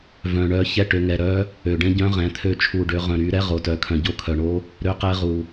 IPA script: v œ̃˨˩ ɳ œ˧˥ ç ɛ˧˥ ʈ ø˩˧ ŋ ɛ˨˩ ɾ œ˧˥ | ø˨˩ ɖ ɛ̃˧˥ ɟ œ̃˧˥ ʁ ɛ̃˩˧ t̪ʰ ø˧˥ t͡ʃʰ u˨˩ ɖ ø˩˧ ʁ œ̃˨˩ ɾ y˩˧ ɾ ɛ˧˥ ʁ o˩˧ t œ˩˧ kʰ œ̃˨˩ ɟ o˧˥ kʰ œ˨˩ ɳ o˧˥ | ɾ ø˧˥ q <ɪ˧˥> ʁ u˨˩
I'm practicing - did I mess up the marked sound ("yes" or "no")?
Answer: yes